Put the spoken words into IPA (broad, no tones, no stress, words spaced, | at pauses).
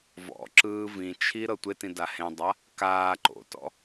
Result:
vɔ̰ ǁɯːvĩt͡ʃʰi ɾɤtʷetĩ dahẽdˤa | kaː ǃo̰tɔ̰